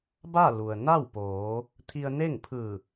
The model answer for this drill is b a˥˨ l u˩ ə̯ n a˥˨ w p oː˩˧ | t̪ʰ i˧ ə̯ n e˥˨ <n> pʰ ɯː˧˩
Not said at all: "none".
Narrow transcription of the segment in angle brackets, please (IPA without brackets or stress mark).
ŋ